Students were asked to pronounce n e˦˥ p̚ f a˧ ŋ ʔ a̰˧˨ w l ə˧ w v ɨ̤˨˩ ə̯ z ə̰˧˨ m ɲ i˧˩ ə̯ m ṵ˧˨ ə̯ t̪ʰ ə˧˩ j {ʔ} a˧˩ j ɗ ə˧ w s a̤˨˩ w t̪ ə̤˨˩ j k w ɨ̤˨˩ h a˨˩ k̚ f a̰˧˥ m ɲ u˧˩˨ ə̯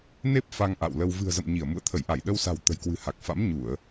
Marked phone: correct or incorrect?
correct